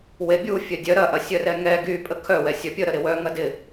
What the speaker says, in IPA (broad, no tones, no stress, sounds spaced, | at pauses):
w e bʲ u fʲ œ dʲ œ ɾ ɐ ʔ ɐ sʲ œ r ɛ ŋ ɛ ɡ y pʼ ə kʰ œ w ɛ sʲ œ pʲ ə ɾ ə ɾ ɪ w œ ŋ ɐ d ɪ